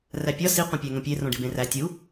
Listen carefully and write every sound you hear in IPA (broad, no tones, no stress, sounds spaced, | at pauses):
r æ pʲ ɒ s i qʷ ẽ pʲ æ ŋ õ pʲ e r õ ɖ i b ẽ r æ tʲ u